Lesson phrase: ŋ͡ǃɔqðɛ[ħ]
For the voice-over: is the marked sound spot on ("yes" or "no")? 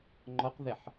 yes